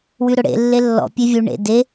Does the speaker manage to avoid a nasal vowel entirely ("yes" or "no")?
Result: yes